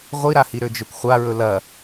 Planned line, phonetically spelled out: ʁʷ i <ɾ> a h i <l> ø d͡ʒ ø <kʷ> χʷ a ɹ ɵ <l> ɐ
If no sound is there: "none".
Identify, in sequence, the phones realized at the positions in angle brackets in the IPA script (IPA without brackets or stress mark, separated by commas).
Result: ɾ, ɾ, kʷ, l